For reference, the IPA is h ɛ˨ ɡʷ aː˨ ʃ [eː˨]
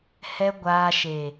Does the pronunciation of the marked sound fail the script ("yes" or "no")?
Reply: no